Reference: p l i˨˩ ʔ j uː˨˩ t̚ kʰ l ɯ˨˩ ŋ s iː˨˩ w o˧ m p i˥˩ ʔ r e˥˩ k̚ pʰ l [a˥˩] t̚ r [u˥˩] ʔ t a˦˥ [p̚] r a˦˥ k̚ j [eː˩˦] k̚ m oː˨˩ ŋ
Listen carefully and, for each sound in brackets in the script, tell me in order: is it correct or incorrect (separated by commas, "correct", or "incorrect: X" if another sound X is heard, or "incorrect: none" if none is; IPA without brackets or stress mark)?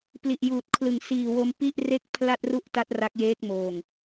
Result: correct, correct, incorrect: t̚, incorrect: eː˦˥